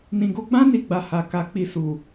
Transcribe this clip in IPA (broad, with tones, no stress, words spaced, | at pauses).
nĩ˨ɡo˧ɡ͡bã˦ ni˧ɡ͡ba˨ ha˨ka˨˦ k͡pi˧su˨